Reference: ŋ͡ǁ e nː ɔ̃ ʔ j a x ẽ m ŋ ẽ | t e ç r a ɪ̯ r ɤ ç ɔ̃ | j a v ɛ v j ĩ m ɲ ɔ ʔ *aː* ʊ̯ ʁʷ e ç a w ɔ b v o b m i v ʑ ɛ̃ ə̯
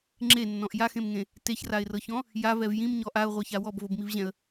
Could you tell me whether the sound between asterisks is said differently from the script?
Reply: yes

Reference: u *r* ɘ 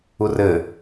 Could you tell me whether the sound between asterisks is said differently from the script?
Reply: no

